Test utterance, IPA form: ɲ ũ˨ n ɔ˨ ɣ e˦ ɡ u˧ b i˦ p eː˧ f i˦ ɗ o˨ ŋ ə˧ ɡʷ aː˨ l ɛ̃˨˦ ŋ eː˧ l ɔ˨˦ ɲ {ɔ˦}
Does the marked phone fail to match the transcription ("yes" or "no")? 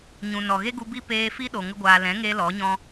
yes